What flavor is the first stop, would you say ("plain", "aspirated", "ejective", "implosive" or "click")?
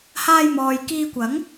plain